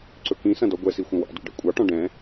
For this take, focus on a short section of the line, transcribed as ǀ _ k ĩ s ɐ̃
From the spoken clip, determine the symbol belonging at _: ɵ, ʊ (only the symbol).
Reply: ɵ